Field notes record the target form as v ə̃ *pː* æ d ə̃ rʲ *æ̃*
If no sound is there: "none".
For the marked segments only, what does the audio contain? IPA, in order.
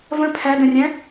pʰ, æ̃

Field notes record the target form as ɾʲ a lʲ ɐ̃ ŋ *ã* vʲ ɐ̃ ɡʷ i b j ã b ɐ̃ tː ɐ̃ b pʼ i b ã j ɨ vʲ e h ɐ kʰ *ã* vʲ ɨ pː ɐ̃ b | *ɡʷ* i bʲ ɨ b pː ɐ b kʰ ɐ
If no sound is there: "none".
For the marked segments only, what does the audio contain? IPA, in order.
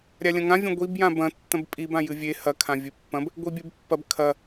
ã, ã, ɡʷ

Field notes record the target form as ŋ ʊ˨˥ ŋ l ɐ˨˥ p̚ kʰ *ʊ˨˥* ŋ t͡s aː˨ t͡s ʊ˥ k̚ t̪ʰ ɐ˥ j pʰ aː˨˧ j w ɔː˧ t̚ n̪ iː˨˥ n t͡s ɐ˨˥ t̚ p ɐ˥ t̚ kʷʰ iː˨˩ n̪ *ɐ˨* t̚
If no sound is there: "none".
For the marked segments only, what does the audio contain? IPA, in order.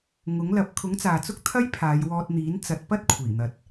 ʊ˨˥, ɐ˨

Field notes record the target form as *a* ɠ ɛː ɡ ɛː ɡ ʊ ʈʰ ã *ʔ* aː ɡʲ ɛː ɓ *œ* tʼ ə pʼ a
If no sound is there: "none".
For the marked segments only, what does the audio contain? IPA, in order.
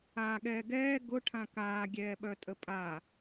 aː, k, œ

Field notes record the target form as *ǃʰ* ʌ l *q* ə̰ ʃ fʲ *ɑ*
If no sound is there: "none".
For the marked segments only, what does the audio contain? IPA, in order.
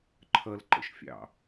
ǃʰ, ǃ, ɑ̰

